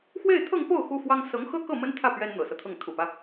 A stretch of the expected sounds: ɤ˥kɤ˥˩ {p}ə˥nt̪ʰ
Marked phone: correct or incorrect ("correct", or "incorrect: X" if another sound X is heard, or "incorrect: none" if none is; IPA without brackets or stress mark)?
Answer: incorrect: m